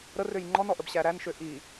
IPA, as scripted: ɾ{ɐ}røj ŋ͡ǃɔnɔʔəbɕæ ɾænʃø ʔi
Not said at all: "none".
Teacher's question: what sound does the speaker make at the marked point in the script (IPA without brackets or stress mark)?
ə